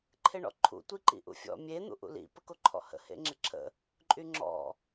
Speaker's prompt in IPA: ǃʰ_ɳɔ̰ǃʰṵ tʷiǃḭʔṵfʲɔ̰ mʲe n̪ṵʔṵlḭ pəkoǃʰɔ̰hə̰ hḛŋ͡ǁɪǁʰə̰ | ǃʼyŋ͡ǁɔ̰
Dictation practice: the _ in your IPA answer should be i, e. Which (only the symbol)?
e